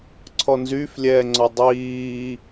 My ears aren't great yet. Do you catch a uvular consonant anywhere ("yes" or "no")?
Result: no